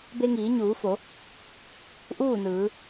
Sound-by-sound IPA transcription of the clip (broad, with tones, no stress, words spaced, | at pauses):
be˧ŋiː˩˧ɲuː˩˧fo˩˧ | ʔuː˥˨nɯː˩˧